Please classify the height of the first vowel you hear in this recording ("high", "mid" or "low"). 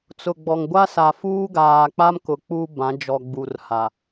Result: high